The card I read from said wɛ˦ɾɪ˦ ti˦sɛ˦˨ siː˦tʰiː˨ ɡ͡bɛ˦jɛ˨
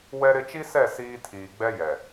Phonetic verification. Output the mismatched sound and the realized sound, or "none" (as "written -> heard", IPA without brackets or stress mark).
t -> t͡ʃ